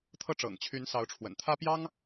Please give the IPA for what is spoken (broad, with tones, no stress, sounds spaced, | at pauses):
t̪ʰ ɤ˥˩ ʈ͡ʂ ɤ̰˨˩ ŋ t͡ɕʰ y˧˥ n s ɑ˧˥ ʊ̯ ʈ͡ʂʰ w ə̰˨˩ n t̪ʰ ä˥ p j ɑ˥ ŋ